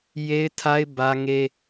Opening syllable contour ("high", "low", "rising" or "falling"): high